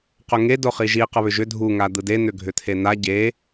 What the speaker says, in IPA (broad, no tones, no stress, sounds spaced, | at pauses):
q ʊ ŋ e d o χ i ʒ i q ə β ʏ ʒ ʏ dʱ u ŋ a d̪ ɯ d e n̪ ʏ ɡʱ ʏ t̪ʰ e n̪ a ɟ e